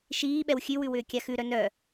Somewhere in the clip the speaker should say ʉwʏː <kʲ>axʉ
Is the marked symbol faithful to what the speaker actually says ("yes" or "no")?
yes